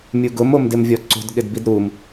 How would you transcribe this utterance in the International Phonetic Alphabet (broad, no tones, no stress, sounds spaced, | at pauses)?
mʲ u ɡ ʊ m o m d ɪ m vʲ ɔ ǀ o̤ d ɠ ɪ d b i d ɾ u m